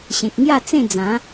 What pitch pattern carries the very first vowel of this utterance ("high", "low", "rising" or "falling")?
low